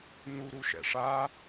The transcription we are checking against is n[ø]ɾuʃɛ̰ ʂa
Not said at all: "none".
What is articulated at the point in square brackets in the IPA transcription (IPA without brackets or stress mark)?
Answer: u